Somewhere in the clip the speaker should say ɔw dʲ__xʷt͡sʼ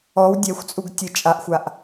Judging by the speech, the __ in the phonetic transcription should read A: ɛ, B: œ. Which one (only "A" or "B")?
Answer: A